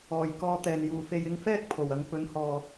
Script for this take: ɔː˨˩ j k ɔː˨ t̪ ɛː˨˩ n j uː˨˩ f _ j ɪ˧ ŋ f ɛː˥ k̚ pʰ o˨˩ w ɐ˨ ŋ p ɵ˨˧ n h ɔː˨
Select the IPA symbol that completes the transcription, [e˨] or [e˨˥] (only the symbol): e˨